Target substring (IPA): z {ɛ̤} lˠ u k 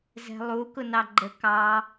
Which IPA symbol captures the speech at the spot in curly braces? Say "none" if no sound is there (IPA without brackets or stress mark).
ɛ̤